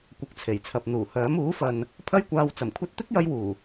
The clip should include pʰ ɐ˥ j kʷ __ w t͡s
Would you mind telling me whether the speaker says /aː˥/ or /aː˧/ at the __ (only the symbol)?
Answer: aː˧